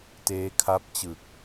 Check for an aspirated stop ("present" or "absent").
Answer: present